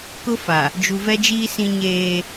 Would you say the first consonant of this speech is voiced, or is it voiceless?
voiceless